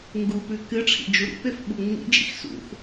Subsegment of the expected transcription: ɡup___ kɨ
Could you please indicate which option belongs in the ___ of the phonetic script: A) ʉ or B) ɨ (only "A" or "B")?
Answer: A